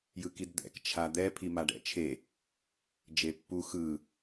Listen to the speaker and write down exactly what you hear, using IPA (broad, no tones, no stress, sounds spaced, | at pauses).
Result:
j ɯ k i d d̪ ɛ̰ k t͡ʃʰ a d̪ ɛ pʰ i m a ɖ ɛ̰ t͡ʃʰ e | d͡ʒ e pː u x ɯ